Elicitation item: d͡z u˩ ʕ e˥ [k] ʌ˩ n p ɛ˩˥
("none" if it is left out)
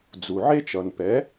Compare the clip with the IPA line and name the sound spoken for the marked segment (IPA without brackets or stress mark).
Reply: t͡ʃ